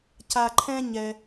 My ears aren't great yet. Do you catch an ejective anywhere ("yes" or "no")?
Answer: no